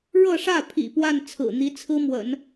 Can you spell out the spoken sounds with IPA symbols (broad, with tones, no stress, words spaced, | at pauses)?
ɻɤ˥˧ʂä˥˩pʰḭ˨˩ pwa˥˩n t͡sʰɹ̩˨˩n̪i˧˥ t͡sʰɹ̩˥mwə̰˨˩˦n